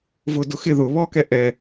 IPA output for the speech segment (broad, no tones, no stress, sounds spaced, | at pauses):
v ʊ d ʊ x ɪ ð ʊ β ɔ k ɛ ʔ ɛ